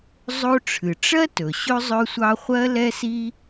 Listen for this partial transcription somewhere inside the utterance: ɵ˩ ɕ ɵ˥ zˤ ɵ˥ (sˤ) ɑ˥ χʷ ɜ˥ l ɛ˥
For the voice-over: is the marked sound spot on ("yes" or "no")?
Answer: no